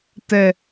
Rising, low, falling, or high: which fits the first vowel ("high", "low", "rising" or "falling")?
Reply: high